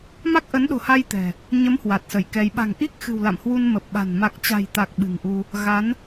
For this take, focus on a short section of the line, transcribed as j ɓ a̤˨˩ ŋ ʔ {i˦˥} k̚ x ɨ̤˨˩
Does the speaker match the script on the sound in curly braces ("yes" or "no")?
yes